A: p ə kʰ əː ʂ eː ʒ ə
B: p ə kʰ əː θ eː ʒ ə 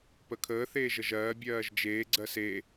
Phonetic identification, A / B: B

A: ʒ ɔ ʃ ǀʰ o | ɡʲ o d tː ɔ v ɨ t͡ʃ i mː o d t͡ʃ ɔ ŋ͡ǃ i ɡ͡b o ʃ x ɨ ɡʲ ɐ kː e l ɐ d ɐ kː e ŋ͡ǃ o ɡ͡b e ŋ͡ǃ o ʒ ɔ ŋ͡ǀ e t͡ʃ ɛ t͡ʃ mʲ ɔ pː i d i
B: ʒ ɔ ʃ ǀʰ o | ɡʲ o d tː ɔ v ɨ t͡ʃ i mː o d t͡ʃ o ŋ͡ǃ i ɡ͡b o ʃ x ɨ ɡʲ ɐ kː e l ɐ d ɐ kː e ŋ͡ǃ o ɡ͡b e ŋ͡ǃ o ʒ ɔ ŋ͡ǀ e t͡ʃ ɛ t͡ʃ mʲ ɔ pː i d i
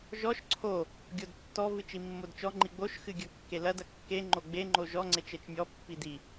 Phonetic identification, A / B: A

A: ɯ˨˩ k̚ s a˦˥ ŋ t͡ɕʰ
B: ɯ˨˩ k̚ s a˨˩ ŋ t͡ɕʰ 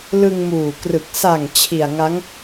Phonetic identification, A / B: B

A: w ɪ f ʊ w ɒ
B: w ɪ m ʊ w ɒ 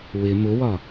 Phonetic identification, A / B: B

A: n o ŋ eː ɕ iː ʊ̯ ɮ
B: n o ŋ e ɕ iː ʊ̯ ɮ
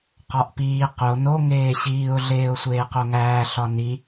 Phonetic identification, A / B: A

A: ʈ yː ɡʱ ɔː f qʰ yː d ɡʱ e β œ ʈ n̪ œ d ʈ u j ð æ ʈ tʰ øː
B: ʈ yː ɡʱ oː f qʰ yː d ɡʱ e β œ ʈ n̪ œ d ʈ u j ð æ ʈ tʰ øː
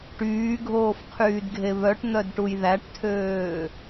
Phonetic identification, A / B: B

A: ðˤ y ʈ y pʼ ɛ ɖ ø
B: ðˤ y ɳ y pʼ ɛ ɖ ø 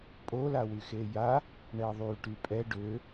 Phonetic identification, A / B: A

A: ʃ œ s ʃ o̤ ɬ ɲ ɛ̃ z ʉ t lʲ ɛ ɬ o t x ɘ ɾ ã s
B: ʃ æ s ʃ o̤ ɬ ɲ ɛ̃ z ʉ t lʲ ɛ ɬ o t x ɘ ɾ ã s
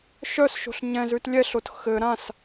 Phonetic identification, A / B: A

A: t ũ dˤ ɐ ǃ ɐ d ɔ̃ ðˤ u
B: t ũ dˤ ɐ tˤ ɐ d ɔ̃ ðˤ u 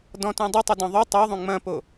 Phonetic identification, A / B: B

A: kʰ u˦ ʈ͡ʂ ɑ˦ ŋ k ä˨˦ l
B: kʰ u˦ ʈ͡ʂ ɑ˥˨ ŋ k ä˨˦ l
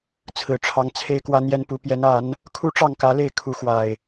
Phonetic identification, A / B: B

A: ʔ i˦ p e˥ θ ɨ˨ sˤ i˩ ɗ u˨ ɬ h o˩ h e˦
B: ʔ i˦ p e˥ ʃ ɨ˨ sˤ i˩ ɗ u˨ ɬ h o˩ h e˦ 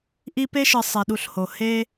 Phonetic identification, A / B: B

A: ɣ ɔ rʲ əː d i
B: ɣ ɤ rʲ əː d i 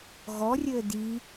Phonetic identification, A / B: A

